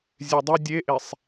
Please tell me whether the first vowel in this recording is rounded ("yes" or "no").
no